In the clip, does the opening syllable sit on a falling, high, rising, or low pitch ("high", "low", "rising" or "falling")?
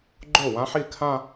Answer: falling